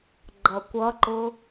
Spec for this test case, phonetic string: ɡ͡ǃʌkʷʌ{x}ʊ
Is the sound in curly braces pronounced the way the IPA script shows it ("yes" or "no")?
no